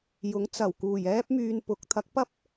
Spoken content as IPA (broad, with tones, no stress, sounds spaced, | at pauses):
j ʊ˨˥ ŋ t͡s ɐ˨˩ w k uː˨˩ j ɛː˥ p̚ m yː˧ n p ʊ˨˥ k̚ t̪ʰ ɐ˨˥ k̚ p ɐ˥ p̚